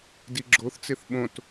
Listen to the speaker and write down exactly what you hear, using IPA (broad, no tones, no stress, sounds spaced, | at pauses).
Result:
d i ɡ͡ǁ o θ t͡s e θ ɓ õ t